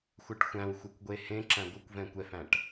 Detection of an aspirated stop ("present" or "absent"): absent